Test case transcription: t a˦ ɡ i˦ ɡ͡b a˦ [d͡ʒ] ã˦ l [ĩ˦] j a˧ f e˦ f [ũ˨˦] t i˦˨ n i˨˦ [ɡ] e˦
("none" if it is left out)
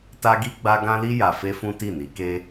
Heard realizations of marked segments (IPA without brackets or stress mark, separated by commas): ɡ, i˦, ũ˦, k